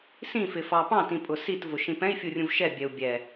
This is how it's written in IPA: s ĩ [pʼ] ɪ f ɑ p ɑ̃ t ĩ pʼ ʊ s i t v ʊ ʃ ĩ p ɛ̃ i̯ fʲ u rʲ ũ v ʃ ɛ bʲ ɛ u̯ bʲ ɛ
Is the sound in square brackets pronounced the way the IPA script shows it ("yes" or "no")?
no